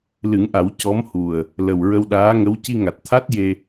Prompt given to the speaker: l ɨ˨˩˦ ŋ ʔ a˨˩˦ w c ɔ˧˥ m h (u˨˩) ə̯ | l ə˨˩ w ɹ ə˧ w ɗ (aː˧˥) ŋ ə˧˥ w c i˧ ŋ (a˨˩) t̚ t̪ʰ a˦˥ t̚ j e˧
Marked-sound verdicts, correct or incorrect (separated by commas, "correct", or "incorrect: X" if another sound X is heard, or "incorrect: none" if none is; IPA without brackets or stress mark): correct, correct, correct